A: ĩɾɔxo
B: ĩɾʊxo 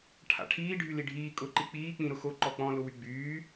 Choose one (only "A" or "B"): B